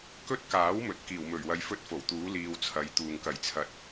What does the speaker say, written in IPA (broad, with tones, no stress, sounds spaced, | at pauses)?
k ɵ˥ t̚ k aː˨˥ w m ɵ˨˥ t̚ k iː˨˩ w m ɵ˨˩ ɥ w ɐ˨˧ j f ɵ˥ t̚ f o˨˩ w t̪ uː˨˥ l iː˧ w t͡sʰ ɐ˨˧ j t̪ uː˨ ŋ k ɐ˨˩ j t͡sʰ ɐ˨˥ t̚